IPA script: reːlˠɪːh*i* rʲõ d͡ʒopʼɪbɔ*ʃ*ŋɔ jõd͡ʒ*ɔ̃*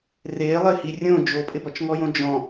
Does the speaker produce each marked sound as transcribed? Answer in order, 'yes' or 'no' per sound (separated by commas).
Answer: yes, no, yes